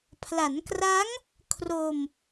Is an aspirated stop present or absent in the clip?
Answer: present